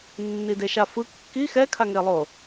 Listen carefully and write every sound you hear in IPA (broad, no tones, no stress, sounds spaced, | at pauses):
nː i d e ʃ a f ɯ kː i x ɛ kʰ a ŋ e lˠ o